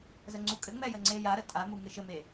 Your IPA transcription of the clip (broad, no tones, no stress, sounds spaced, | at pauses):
z ə ŋ͡ǀ u kʼ ɘ ŋ͡m ɛ j ə ŋ͡ǀ e j a ɾ ə tʼ a m u ŋ ɘ ʃ ɘ m e